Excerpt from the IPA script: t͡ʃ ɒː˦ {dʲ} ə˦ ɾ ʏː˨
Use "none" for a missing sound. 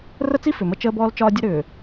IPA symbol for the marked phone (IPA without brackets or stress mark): dʲ